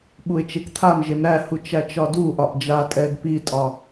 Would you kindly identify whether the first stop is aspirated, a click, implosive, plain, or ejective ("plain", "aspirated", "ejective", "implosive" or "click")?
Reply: implosive